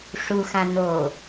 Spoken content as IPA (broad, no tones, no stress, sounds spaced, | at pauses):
ʂ u x ã n o